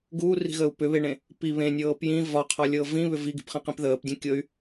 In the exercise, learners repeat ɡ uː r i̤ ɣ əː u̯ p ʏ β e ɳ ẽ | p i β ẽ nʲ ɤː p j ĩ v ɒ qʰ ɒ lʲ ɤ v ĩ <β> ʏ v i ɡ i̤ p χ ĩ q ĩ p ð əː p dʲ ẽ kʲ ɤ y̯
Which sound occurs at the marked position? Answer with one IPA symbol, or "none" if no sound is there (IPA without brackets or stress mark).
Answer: β